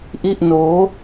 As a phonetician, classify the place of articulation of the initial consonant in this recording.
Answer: glottal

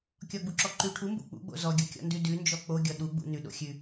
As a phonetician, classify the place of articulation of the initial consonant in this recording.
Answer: velar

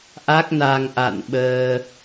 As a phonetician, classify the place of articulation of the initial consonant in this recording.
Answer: glottal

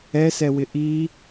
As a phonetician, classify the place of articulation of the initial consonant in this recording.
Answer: alveolar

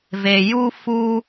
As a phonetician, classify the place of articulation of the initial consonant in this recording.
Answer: labial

